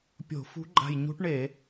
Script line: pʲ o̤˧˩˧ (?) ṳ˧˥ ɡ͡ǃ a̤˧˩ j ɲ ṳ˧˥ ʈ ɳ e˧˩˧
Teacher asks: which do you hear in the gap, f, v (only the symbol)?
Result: f